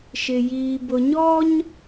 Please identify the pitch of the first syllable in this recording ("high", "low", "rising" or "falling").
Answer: low